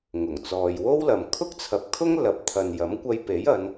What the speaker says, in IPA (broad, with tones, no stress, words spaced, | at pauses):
ŋʊ˨˩ŋt͡sɔː˨jwo˥wlɐ˨m kʰʊ˥k̚t͡sʰɐ˨˥p̚kʰʊ˥ŋ lɐ˨˥p̚t̪ʰɐ˨njɐ˨˥mkʷɐ˧j pe˨˥jɐ˨˧n